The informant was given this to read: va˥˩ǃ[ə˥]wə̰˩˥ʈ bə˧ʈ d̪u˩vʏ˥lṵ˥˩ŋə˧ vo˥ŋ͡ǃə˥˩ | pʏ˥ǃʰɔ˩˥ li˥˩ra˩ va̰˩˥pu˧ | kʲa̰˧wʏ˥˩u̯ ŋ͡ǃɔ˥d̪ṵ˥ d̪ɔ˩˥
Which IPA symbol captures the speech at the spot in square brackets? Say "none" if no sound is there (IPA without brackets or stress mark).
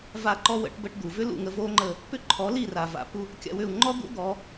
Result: ɔ˥